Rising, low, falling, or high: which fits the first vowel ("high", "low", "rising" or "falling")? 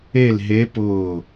falling